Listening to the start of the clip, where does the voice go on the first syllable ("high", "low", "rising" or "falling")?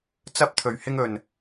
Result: high